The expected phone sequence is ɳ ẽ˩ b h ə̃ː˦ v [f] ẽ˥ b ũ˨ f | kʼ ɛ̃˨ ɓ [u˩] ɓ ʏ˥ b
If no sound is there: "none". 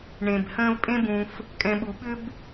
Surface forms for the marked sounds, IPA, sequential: pʼ, u˩

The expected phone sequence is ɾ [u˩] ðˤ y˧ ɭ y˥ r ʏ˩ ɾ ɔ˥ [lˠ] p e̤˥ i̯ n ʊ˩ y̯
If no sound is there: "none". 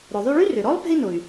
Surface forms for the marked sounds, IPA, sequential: ʊ˩, lˠ

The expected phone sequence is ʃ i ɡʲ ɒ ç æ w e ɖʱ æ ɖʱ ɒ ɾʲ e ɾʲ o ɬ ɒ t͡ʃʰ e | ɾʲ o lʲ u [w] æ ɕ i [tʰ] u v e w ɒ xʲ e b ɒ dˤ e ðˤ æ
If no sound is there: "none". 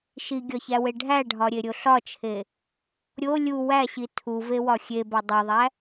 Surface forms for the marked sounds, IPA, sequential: w, tʰ

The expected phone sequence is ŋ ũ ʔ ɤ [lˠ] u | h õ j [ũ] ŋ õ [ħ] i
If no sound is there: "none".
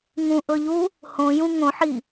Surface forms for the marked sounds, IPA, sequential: ʎ, ũ, ħ

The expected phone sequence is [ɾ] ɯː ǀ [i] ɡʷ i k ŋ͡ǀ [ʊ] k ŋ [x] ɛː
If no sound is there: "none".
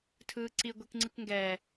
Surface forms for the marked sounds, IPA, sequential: tʰ, i, ɯ, ɡ

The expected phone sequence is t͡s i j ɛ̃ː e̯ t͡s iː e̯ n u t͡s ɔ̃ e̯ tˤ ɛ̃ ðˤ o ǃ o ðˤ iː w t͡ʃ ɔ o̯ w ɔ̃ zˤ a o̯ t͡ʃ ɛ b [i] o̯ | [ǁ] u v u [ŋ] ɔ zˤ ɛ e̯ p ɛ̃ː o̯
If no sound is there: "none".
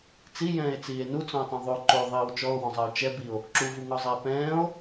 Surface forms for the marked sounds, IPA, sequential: i, ǁ, ŋ

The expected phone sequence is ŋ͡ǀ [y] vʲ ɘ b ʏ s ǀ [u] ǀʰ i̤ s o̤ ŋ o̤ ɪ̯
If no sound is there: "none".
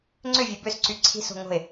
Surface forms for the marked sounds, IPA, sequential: ʏ, y

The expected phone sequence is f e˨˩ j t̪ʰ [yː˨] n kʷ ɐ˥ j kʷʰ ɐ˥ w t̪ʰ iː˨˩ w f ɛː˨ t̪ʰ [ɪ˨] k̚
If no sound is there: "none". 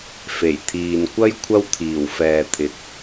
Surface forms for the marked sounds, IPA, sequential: iː˨, ɪ˨

